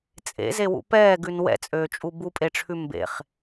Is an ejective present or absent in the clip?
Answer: present